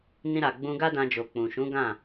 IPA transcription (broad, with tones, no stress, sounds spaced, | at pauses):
n ĩ˧ ɾ a˨ ɡ͡b ũ˧ ɡ a˦ d ã˧ d͡ʒ o˨ k͡p ũ˨ ʃ ũ˨˦ ɡ ã˦˨